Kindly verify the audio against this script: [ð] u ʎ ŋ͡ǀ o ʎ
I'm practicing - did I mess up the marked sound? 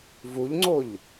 yes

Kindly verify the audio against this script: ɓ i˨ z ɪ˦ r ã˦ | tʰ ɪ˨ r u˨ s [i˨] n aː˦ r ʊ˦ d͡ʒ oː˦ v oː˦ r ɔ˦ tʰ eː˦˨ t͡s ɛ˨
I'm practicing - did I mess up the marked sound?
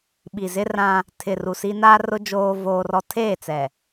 yes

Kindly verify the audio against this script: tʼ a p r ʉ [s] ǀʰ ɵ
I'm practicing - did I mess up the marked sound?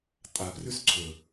no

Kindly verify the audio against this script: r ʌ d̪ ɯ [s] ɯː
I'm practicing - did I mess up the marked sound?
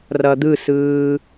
no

